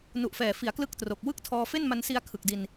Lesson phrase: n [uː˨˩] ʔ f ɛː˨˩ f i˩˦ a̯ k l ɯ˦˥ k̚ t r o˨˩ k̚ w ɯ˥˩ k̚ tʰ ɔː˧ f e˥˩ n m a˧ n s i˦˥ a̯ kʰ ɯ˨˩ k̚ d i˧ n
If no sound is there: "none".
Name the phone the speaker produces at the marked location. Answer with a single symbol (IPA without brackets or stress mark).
u˨˩